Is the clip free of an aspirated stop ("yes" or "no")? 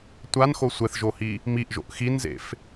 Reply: yes